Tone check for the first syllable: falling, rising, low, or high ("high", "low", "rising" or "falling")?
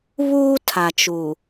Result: high